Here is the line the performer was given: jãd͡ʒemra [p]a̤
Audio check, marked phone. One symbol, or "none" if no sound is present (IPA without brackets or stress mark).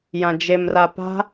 p